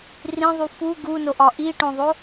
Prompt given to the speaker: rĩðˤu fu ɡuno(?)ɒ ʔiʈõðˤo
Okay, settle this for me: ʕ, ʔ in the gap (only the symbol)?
ʔ